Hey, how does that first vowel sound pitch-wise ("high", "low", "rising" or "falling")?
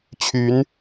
rising